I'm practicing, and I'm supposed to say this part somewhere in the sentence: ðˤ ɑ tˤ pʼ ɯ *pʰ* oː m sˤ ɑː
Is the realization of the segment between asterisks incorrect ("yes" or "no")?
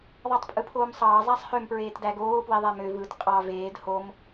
no